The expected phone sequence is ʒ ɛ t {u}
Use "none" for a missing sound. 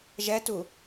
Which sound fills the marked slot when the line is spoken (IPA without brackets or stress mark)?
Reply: u